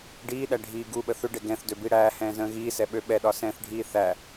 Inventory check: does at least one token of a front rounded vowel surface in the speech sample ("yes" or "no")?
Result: yes